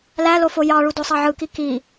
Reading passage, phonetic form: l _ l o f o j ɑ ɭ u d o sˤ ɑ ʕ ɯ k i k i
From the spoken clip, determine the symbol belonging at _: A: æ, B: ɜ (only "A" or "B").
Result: A